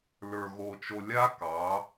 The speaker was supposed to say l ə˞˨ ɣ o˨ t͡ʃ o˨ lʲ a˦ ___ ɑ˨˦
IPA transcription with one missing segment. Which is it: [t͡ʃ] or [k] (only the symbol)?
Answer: k